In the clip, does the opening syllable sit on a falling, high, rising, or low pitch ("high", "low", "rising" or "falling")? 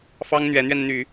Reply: high